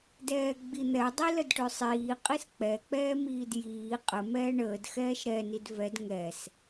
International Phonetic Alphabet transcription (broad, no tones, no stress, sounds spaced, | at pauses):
d ɛː ɡ͡b i n̪ ɛ dˤ i l ə d ʈ ø sˤ iː qʼ i s k͡p ɛ k͡p ɛː m iː d j iː qʼ ə m ɛː ɳ əː d x ɛː ʃ ɾ ɛ n i d v ɛ d ŋ ɛ s